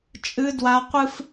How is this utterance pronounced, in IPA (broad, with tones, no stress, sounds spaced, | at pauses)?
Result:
t͡ʃʼ ɨ˦ d w a˦ qʷ ɨ˦ f